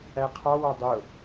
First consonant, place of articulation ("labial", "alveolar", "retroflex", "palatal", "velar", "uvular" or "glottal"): uvular